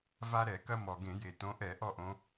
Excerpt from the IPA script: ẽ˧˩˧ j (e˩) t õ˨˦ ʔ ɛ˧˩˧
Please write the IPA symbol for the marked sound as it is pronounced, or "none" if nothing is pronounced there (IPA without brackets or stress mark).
e˩